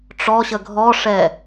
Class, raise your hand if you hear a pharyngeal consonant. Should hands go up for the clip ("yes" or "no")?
no